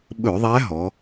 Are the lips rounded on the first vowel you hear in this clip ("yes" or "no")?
yes